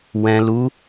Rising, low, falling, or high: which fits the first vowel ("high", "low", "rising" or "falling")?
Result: low